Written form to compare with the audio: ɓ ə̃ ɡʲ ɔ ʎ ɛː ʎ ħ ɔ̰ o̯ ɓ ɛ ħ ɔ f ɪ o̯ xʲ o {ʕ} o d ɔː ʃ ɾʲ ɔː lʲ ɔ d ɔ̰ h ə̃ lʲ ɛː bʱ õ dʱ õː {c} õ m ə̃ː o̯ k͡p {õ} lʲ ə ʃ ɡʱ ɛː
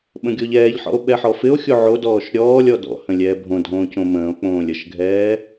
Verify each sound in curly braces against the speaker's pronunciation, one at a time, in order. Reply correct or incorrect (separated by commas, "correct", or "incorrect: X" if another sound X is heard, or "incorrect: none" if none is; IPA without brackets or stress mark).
correct, correct, incorrect: õː